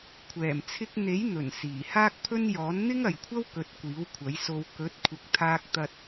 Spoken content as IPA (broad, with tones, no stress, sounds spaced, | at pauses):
kʷʰ ɛː˨˩ m t͡sʰ ɪ˧ k̚ n̪ e˨˥ j n̪ ɵ˨˩ n s iː˨˩ h aː˥ k̚ pʰ ɵ˥ n j ɔː˨˥ n n̪ ɪ˥ ŋ ɐ˨ j kʷʰ ɐ˥ w k ɵ˧ t̚ kʷ iː˨˥ w kʷʰ ɐ˨˥ j s o˧ w k ɵ˨˥ t̚ kʷʰ ɪ˨ k̚ t̪ʰ aː˥ k̚ t̪ ɐ˥ t̚